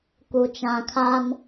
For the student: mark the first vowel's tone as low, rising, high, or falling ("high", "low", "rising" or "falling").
low